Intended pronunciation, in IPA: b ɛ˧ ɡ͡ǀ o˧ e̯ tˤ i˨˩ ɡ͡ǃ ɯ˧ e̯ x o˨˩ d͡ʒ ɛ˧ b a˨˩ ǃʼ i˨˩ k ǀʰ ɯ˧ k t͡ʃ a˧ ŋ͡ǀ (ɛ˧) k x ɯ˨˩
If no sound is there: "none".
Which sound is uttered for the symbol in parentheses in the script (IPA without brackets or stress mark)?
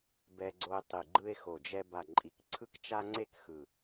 e˧